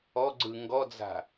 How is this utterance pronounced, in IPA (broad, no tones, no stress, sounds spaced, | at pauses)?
ɔ ɡ͡ǀ ɯ ŋ ɡ ɔ d͡z a̤